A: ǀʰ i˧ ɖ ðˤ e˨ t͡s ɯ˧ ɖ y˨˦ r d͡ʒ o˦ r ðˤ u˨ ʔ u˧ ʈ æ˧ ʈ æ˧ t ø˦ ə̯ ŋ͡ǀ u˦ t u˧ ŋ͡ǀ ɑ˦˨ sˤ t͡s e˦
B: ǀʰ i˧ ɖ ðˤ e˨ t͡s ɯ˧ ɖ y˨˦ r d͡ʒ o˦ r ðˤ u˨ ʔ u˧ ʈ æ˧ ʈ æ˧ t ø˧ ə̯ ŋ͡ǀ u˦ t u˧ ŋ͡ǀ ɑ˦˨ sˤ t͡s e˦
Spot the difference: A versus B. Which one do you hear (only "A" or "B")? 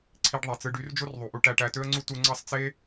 A